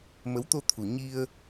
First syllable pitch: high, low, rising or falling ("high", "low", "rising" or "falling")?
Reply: rising